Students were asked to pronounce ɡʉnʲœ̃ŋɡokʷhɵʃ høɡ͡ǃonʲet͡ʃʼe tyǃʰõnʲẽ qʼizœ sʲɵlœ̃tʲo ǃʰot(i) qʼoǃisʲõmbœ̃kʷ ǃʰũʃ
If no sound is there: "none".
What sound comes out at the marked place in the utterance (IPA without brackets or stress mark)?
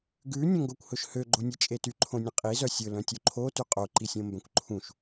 y